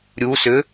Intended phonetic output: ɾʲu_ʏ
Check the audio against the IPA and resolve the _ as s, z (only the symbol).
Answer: s